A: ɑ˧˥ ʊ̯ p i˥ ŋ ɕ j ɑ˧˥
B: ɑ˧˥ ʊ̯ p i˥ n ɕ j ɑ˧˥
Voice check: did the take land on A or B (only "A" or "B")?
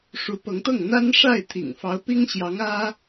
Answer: A